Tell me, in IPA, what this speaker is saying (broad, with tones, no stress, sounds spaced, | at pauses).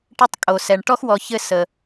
ʈ ɘ˥ tˤ kʼ o˩ s ɛ˩ ɳ ʈ ɔ˥ x w ɔ˨ ç ɘ˦ s ə˩